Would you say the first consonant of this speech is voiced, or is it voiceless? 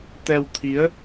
voiceless